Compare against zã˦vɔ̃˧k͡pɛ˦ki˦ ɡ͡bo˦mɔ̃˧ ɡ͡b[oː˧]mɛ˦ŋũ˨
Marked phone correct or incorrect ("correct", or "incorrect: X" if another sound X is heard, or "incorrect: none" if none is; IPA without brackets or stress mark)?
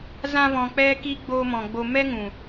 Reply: incorrect: o˧